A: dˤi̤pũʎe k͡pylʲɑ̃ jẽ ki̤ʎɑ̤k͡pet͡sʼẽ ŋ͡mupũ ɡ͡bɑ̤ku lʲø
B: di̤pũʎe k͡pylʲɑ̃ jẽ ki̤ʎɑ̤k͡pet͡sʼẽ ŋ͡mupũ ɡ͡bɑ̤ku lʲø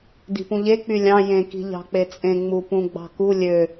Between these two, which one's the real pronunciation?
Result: B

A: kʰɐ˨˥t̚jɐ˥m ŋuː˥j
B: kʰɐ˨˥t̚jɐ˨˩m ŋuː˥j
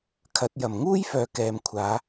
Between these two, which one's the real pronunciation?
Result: B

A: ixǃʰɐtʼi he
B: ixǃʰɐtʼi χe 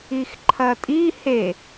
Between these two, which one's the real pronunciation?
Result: A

